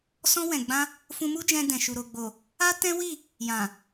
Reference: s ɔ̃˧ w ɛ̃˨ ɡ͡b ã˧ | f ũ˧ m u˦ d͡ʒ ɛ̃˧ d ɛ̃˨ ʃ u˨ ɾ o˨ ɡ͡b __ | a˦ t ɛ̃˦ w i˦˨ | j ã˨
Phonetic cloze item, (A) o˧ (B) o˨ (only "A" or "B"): B